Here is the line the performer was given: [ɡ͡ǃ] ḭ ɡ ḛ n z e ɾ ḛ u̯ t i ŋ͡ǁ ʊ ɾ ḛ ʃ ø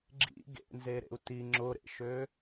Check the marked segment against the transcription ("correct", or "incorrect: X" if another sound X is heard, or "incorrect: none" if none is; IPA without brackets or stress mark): incorrect: ɡ͡ǁ